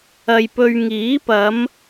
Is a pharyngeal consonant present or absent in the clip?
absent